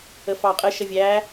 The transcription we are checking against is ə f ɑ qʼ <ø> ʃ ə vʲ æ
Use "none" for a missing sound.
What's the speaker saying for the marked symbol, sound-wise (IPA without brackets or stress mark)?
ə